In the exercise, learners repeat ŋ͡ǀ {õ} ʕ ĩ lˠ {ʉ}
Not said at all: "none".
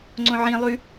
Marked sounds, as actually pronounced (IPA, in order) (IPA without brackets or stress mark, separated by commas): õ, ʉ